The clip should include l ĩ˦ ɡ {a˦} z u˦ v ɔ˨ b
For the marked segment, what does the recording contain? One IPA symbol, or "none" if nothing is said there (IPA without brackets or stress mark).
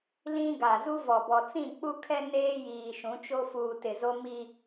a˨